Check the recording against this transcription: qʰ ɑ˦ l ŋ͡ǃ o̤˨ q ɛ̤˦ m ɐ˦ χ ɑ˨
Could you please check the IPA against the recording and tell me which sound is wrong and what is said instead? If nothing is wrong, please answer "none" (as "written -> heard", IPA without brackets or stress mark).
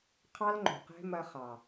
none